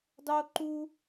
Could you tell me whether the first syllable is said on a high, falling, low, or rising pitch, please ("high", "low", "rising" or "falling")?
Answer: high